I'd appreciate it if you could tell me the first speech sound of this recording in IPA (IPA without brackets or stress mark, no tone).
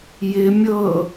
j